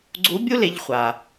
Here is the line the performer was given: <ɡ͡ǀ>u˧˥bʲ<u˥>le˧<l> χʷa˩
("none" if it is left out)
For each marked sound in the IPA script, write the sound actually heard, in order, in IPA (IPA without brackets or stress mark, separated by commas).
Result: ɡ͡ǀ, u˥, ʎ